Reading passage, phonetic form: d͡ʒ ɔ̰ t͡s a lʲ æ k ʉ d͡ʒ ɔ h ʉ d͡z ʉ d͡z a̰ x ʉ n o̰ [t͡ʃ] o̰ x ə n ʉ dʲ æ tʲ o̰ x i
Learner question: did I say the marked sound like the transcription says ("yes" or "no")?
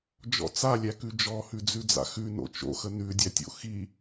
yes